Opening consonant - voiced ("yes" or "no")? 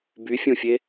yes